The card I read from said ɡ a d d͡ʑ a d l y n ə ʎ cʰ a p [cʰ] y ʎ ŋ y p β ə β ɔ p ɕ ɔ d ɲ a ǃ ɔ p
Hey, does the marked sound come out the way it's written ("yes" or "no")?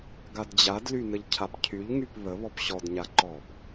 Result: yes